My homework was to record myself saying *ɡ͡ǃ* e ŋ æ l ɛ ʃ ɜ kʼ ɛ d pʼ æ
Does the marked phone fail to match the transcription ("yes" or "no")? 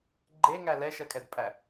no